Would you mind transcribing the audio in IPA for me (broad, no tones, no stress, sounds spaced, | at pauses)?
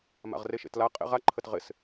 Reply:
m a̰ ʁ r e ʃ ḛ t l a qʼ ḛ ʁ a ǃʰ ə t ʁ ɪ s